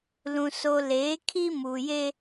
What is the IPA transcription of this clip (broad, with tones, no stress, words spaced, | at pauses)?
lũ˨so˨ leː˨˦kʰi˦ muː˨je˦